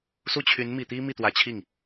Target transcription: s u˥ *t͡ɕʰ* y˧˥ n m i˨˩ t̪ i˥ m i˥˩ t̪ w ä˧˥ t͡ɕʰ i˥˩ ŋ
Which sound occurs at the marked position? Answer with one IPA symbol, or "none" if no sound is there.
t͡ɕʰ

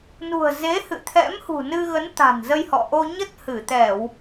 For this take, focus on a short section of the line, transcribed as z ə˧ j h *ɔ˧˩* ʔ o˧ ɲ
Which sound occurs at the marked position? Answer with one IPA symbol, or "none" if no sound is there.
ɔ̰˧˨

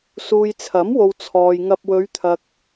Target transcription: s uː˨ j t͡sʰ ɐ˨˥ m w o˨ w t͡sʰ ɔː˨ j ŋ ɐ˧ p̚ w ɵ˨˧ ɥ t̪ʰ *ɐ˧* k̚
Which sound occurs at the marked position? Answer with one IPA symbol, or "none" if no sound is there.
ɐ˨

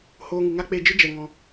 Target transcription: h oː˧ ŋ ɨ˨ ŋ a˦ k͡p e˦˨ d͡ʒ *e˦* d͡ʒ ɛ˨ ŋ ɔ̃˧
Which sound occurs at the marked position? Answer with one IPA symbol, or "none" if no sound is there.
ɨ˦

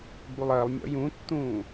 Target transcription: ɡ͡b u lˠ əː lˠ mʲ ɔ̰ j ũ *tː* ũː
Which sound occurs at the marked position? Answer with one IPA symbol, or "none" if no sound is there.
tː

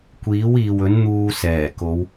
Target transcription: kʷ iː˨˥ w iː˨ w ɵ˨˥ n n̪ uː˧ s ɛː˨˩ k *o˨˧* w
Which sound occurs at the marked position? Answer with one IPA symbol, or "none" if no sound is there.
o˨˧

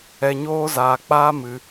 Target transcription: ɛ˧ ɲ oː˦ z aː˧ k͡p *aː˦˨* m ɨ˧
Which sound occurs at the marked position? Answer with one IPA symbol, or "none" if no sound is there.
aː˦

